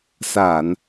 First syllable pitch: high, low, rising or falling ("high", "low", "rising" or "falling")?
low